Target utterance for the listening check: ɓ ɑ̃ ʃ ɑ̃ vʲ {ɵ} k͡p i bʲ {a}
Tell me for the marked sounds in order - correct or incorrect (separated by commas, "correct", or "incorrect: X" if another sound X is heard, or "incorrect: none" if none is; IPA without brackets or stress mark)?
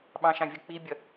incorrect: ʊ, incorrect: ʌ